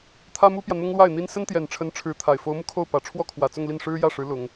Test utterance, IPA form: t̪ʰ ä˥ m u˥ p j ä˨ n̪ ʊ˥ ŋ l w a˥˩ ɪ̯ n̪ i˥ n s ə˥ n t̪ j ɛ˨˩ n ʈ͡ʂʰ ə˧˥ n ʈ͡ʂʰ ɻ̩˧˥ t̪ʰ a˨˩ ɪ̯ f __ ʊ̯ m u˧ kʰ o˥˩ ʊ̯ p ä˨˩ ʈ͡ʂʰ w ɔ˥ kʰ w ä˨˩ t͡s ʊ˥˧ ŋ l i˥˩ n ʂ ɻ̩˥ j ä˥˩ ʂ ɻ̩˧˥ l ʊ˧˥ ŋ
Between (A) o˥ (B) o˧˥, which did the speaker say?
B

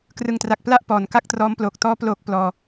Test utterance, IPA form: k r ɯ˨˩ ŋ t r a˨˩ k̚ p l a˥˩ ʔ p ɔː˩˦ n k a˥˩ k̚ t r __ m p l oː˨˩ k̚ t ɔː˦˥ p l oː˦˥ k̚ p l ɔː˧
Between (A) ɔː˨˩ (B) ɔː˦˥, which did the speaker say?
B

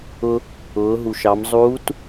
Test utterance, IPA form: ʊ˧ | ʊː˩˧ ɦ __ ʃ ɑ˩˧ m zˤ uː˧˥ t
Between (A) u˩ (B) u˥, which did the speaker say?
A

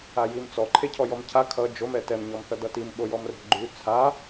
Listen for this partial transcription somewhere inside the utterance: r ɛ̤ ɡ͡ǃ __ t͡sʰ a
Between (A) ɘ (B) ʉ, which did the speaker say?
B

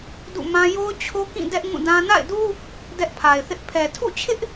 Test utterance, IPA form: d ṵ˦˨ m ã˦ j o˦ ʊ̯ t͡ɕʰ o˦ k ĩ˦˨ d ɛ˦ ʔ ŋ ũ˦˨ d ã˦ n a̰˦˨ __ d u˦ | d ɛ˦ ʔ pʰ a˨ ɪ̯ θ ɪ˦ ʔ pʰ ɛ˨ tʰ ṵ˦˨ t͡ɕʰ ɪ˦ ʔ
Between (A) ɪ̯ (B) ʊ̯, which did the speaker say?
A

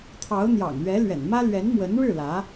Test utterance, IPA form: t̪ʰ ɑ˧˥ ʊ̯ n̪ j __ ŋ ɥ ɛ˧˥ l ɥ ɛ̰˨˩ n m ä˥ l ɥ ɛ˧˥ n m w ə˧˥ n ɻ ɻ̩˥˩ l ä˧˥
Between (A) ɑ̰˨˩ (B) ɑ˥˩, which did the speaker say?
A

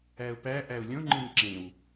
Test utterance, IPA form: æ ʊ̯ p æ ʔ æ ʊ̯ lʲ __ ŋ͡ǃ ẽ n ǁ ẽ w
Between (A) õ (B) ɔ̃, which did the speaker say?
A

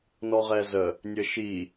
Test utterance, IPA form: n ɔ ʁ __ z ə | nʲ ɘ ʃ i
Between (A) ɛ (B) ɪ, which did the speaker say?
A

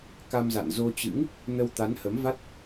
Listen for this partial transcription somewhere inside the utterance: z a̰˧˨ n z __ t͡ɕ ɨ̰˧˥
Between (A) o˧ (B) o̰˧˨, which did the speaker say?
A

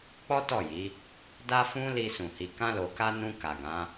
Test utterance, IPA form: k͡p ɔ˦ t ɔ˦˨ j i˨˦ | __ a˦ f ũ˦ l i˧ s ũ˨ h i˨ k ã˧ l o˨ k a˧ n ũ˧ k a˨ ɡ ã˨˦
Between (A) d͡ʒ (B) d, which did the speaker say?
B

